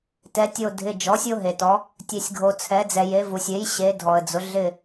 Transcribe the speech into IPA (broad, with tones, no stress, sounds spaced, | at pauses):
t ɛ˩˧ tʲ o˧˩ dʱ ɪ˩˧˩ d͡ʒ ɔ˩˥ sʲ o˦ ɦ e˩ t ɔ˩˧ | tʲ e˩ sʲ ɡʱ o˩ t͡sʰ ɛ˩˧ d͡z ɛ˩ j e˩˧ v u˩ sʲ e˩˥ j ɕ e˩˧ dʱ ɔ˩ ə̯ d͡z ʊ˩˧ ɮ ɪ˧˩